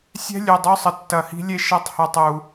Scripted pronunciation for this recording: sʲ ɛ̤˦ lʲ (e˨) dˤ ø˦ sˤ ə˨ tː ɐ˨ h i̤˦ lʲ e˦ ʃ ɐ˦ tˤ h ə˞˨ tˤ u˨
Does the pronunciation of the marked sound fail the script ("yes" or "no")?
yes